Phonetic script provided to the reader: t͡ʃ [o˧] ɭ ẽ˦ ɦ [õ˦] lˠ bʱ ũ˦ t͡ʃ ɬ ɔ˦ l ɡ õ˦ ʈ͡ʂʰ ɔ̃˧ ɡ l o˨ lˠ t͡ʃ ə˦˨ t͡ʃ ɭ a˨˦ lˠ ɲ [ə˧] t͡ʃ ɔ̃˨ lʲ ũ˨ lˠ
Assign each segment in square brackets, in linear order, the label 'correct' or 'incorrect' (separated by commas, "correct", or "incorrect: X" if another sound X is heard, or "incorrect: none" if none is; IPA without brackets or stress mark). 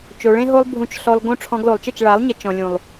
correct, incorrect: o˦, correct